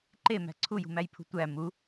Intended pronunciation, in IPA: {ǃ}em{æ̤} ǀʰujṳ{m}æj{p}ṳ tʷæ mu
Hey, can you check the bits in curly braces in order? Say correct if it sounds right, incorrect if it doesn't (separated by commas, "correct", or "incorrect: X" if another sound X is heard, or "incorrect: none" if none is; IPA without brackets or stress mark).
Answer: correct, correct, correct, incorrect: pʰ